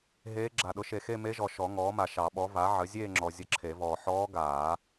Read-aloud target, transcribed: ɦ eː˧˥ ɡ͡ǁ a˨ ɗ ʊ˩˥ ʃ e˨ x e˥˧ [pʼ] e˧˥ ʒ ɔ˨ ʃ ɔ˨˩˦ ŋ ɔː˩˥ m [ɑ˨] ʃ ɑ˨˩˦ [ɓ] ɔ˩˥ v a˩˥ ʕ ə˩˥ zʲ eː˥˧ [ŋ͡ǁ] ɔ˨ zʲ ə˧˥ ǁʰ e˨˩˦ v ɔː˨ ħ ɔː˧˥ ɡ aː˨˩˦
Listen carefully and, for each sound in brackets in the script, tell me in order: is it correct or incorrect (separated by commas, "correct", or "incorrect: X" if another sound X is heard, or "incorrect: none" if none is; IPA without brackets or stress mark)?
incorrect: m, incorrect: a˨, correct, correct